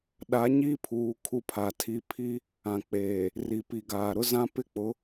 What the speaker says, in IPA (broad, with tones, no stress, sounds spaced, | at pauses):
ɗ a˨˦ ɲ i˦ pʰ uː˨ kʰ u˦ pʰ a˨ tʰ i˦ pʰ i˦ | ã˨ k͡p eː˨ | r i˨ p i˨ ɡ aː˨ ɾ ʊ˦ z ã˦ p ɪ˦ k͡p ʊ˨˦